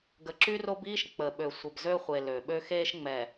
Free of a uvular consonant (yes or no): no